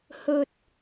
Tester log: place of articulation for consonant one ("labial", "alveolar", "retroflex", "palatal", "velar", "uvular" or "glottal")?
glottal